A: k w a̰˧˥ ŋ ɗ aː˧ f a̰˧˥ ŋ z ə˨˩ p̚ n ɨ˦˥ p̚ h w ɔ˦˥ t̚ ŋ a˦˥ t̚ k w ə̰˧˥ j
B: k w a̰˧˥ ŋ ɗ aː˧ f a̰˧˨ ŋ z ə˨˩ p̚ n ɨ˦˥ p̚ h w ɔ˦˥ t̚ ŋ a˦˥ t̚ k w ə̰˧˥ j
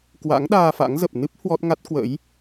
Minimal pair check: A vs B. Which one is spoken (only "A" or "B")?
A